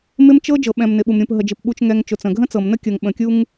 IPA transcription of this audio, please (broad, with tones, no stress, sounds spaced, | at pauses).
m ɪ˦ m t͡ʃ ɤ˦ d͡ʒ ɤ˨ ɓ ɛ̃˨ m n ɪ˨ ɓ u˨ m ɾʲ ũ˨ p ɦ ə˨ d͡ʒ ɪ˨ p ɓ u˨ t͡ʃ ŋ ɛ˨ ŋ t͡ʃ ʊ˨ t͡s ə̃˨ ɡʱ ə̃˦ t͡s ɤ˨ m n ə˦ kʲ ɤ˨ ŋ ɓ ə̃˨ kʲ u˦ ŋ